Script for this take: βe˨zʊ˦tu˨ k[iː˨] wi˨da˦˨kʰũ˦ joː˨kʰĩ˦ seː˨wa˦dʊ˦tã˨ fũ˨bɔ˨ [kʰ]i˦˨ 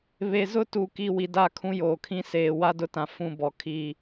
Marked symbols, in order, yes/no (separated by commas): no, yes